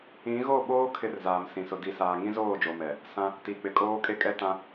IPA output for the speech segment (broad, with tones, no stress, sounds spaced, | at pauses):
ĩ˨˦ ɣ o˦˨ ɓ oː˦ kʰ ɪ˦ r z aː˨ m s ĩ˨ s ʊ˨ d i˨ s aː˨ ŋ ĩ˦ z oː˦˨ d͡ʒ o˨ m ɛ˨ | s ã˦ | t i˨ k͡p ɪ˨ kʼ oː˦ kʼ e˦ kʼ ɛ˦ t ã˦